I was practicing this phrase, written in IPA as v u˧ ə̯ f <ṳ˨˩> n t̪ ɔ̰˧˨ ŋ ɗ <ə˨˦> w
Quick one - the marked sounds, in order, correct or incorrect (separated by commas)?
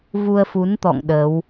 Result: incorrect, incorrect